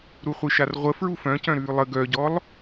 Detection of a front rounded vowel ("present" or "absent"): present